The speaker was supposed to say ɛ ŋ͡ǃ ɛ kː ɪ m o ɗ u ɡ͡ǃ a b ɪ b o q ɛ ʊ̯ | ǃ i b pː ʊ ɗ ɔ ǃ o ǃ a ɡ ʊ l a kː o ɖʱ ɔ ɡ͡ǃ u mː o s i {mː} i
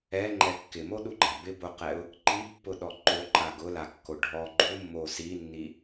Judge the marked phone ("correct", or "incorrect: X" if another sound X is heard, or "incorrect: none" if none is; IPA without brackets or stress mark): incorrect: nː